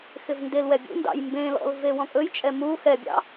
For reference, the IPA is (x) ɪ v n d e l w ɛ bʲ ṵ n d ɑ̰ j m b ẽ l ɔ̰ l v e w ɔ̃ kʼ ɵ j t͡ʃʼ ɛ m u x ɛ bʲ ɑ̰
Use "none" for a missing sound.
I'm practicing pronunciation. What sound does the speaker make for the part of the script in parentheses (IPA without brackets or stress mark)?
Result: x